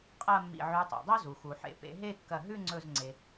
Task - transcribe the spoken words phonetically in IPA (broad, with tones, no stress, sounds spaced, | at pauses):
qʼ ɐ˥˧ mː ḭ˧˩ ʕ ʉ˨˦ tˤ ḛ˩ dˤ o˥ z u˩ x u˩ ħ ḛ˨˦ p ḛ˨˦ ɦ e˥˧ kː ɐ˧˩ ɦ ʉ˥˧ ŋ͡ǀ ɵ˧˩ z ŋ͡ǀ e˩